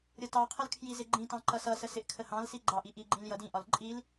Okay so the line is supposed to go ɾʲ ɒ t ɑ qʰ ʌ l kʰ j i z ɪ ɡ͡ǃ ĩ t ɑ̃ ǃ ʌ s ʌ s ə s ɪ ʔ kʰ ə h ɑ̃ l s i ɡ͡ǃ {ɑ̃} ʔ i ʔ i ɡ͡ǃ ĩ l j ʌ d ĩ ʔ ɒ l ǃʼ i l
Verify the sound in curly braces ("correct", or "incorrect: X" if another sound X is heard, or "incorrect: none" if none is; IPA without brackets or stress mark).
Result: incorrect: ɑ